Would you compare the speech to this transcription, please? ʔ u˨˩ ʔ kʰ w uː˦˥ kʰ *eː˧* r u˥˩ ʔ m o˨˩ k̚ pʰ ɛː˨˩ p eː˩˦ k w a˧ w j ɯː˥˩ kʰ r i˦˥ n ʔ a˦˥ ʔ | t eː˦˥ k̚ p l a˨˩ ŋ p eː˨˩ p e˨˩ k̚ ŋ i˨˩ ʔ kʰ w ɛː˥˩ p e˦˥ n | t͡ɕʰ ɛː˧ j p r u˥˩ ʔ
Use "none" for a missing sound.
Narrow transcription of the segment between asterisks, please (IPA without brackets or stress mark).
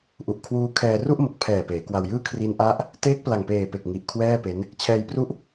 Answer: ɛː˧